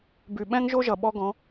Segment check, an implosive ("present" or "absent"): present